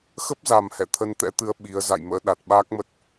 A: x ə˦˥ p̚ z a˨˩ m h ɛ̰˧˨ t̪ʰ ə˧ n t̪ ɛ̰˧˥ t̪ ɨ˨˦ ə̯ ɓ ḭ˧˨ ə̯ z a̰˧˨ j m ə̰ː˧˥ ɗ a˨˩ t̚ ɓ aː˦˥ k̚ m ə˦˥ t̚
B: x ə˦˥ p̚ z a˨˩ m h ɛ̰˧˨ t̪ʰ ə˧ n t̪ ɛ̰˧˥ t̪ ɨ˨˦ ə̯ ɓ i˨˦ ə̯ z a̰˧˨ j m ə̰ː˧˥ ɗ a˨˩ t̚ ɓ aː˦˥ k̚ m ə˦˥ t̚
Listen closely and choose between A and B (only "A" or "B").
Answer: B